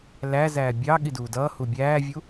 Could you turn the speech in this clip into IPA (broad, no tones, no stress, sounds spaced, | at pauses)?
l æ z æː bʲ ɑ ɠ i d uː d ʌː h u bʲ æː vʲ u